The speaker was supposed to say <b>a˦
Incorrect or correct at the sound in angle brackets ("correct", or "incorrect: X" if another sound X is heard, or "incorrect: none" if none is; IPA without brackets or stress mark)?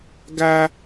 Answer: incorrect: ɡ